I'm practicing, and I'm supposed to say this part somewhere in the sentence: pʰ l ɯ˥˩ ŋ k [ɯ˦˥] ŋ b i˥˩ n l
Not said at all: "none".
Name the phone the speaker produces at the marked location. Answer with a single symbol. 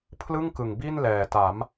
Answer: ɯ˨˩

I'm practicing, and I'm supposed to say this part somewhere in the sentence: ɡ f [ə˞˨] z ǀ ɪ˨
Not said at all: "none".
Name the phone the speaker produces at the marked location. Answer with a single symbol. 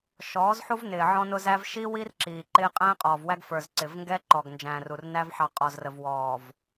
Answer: ə˞˨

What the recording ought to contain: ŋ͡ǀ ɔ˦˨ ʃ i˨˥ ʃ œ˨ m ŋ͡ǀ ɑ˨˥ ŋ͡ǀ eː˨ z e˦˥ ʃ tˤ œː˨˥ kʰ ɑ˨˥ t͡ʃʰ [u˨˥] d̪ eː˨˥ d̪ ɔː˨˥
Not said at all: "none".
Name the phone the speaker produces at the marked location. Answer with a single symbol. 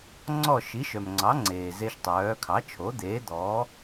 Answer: o˨˥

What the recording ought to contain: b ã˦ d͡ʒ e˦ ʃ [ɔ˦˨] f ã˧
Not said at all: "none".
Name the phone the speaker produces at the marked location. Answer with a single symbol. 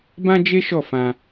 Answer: ɔ˦˨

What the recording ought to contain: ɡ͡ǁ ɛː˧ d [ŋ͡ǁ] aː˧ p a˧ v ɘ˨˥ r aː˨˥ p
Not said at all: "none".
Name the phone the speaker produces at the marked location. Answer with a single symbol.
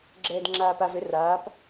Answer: ŋ͡ǁ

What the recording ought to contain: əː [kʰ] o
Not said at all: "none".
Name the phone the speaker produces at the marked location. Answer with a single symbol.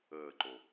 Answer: ǃ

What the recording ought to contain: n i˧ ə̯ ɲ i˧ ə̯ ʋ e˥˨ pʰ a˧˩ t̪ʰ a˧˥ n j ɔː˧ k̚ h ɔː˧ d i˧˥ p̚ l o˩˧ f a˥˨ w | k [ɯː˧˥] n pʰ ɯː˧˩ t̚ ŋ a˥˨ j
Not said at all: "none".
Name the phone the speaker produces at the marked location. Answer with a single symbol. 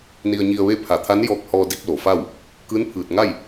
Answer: ɯː˧˥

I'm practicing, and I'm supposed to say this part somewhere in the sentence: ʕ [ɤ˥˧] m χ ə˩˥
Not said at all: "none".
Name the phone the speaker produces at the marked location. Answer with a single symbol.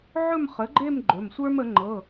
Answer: ɵ˥˧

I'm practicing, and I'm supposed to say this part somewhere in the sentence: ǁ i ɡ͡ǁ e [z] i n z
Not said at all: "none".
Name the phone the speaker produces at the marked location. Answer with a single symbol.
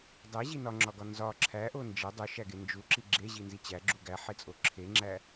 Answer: ʑ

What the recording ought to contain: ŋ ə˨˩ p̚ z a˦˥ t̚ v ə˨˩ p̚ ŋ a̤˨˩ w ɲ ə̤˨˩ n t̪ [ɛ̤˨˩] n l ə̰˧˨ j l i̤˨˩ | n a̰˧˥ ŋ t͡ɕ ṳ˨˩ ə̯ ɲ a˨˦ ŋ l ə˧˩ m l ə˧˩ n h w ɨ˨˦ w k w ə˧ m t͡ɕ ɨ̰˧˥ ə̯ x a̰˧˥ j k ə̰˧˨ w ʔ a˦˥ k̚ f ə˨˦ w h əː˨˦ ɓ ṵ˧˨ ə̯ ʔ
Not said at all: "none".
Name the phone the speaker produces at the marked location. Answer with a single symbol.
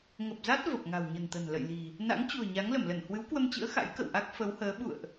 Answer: ə̤˨˩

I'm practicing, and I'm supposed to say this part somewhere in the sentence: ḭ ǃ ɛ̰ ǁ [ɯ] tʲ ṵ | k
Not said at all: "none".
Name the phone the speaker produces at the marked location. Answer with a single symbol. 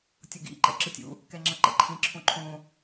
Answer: ɯ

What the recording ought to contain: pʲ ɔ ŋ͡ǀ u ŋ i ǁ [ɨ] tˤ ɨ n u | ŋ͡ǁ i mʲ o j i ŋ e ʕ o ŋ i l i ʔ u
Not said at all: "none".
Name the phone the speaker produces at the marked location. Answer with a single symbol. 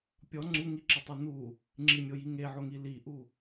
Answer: ə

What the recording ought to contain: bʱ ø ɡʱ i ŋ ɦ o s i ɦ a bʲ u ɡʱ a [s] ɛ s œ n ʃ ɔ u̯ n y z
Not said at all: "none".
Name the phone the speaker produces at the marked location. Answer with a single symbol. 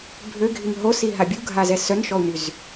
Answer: z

